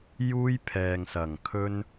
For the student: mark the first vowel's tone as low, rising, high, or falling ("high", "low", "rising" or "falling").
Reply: high